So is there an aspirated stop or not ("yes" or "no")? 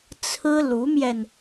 yes